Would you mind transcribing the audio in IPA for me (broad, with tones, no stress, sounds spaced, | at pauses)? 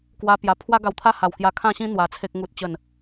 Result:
k w a˧ p j a˨˩ pʰ w a˦ ɡ a˧ w t̪ʰ a˥˧ h a˨˩ w k j a˧ kʰ ã˥˧ ɕ ĩ˦ n̪ w a˧ t͡sʰ e˦ k̚ ŋ u˦ t̚ t͡ɕ ə˥˧ n